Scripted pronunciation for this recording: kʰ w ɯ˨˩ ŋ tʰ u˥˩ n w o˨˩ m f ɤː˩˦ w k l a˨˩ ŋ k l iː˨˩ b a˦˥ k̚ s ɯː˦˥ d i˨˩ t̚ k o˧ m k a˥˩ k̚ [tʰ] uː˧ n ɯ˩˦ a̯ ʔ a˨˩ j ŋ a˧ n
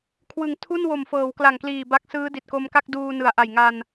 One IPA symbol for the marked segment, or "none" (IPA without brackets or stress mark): d